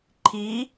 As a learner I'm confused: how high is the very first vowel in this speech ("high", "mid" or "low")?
high